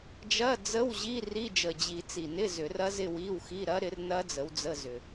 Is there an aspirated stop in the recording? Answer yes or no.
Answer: no